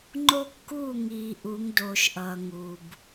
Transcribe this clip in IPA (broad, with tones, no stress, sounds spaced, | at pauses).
ŋ͡ǃ o˦ kː uː˦˨ ŋ iː˨ ʔ u˨˦ ŋ d oː˨ ʃ ʔ ʌː˨ ŋ u˨ b